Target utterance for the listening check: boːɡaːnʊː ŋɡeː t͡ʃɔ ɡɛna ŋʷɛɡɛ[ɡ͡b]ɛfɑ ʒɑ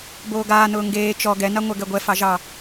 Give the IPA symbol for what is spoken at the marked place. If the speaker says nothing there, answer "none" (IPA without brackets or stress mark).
ɡʷ